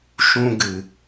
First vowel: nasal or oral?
nasal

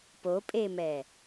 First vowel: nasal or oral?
oral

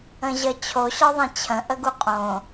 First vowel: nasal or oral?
nasal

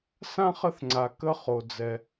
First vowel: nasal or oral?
nasal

